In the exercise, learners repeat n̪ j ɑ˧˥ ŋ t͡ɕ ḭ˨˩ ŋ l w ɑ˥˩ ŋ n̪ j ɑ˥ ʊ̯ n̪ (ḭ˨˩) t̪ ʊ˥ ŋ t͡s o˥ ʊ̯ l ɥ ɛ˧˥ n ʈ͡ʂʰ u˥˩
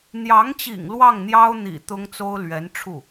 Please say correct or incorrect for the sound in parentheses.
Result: correct